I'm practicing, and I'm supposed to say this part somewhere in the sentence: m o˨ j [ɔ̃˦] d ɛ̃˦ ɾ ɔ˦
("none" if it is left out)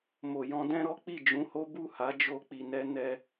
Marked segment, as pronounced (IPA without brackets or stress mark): ɔ̃˧